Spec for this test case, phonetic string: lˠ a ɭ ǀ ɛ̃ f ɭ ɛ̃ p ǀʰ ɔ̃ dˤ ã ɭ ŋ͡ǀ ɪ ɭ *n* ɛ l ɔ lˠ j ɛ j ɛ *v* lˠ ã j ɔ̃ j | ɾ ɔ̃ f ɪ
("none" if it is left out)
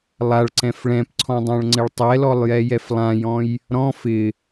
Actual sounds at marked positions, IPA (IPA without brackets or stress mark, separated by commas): tˤ, f